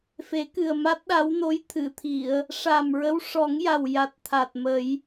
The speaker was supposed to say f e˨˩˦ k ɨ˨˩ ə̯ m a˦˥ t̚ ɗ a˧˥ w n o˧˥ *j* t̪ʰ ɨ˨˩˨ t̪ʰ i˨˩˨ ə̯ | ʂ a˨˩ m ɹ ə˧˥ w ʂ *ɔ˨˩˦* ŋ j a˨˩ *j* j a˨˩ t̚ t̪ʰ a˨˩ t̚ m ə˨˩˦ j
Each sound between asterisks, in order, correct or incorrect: correct, correct, incorrect

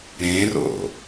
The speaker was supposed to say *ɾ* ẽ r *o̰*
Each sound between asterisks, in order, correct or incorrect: correct, correct

